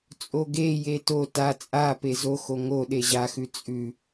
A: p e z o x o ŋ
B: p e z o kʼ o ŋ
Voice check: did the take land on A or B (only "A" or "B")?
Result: A